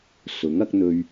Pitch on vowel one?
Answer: rising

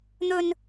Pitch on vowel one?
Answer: high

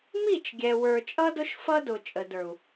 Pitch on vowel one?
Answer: falling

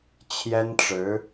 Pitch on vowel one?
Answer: high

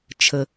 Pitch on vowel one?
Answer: low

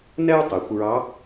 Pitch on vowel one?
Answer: high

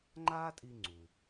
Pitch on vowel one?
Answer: high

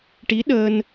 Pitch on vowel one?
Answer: rising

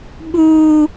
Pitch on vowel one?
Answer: high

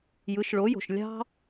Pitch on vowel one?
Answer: rising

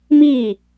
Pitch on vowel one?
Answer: falling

